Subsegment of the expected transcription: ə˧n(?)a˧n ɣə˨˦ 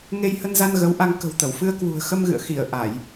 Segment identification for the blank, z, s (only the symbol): z